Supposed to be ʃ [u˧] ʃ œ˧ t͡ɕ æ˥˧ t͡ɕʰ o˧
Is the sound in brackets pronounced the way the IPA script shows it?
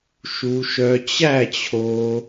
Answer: yes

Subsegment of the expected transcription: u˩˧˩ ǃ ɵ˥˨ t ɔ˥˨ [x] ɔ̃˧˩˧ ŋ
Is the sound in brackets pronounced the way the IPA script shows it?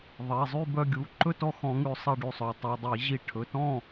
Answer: yes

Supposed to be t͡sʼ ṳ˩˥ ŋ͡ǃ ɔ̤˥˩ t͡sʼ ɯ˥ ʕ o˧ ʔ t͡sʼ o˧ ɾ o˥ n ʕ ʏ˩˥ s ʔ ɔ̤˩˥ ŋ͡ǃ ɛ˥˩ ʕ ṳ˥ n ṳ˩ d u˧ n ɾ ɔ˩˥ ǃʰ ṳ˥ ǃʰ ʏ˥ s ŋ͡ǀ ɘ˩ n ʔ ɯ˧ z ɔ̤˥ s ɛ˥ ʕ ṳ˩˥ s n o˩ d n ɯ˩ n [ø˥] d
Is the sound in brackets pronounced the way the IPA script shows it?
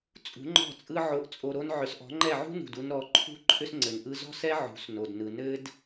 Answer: no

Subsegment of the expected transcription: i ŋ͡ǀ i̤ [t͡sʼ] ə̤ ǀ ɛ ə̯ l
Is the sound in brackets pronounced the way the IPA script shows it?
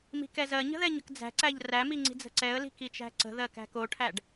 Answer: no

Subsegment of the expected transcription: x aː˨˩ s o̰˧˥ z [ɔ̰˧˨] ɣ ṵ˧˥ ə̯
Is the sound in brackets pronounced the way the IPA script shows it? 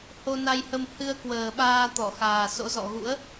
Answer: yes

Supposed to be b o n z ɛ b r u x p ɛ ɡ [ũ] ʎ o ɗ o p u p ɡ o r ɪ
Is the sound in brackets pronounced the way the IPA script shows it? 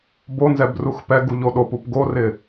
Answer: no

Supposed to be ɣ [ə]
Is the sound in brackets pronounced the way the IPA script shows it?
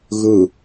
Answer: no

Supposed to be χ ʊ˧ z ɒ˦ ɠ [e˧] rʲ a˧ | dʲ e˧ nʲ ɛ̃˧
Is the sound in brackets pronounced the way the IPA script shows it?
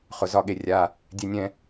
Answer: yes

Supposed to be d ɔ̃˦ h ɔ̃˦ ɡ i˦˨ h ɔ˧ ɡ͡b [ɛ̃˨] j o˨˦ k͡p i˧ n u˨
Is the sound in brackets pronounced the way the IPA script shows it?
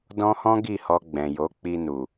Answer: yes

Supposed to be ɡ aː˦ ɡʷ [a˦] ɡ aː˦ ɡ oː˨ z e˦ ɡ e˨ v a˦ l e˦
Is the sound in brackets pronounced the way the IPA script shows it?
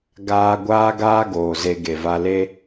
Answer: no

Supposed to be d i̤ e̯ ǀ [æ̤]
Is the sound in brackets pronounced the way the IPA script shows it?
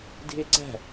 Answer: yes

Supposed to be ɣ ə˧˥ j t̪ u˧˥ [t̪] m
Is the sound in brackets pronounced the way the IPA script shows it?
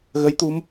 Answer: no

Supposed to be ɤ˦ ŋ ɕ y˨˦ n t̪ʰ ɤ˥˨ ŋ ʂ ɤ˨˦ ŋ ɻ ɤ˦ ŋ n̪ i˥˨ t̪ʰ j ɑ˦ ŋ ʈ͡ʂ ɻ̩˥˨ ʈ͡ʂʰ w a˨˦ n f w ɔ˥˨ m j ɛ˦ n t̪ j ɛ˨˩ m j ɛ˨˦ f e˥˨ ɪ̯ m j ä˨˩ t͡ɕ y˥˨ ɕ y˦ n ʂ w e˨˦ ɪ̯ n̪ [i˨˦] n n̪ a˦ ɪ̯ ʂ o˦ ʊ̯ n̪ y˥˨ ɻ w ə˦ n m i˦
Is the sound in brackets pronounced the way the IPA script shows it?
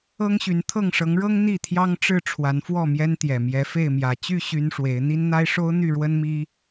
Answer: no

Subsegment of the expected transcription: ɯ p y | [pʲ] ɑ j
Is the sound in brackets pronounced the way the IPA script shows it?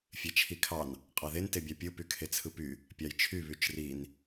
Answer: yes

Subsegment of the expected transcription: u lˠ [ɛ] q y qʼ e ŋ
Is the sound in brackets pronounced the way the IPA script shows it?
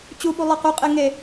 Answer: yes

